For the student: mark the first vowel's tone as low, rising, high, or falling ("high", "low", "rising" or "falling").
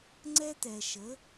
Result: high